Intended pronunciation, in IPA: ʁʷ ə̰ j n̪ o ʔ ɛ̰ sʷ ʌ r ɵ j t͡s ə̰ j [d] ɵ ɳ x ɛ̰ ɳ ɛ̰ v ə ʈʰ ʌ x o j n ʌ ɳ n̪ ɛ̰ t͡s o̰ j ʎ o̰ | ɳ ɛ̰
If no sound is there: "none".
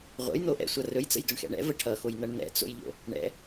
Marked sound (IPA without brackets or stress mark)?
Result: d